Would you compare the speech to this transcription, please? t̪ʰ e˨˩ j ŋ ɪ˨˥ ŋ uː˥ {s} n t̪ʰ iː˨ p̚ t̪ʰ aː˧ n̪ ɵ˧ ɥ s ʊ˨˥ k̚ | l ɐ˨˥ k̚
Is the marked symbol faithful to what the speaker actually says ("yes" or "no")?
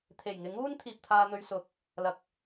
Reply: no